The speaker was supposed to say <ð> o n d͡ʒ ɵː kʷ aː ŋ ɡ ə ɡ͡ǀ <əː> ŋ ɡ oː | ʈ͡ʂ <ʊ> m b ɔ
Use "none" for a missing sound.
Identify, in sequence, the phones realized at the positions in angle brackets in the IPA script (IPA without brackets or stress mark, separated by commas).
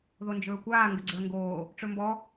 ð, əː, ɵ